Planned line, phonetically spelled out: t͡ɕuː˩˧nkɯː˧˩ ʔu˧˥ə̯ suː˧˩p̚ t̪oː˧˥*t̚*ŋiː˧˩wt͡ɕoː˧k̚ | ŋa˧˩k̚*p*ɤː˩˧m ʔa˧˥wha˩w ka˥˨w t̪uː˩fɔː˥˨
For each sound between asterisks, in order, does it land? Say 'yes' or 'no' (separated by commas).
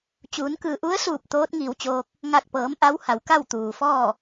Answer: yes, yes